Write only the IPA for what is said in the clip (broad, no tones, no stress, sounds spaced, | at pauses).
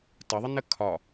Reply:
t ə ðˤ ɪ n ə kʰ ɒ